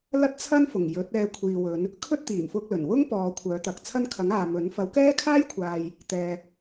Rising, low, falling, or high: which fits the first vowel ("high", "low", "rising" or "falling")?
high